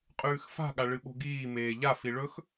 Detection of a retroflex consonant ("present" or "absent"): present